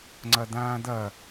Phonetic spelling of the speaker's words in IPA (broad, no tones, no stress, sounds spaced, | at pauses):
ŋ͡ǀ ɐ d̪ ãː d̪ ɐ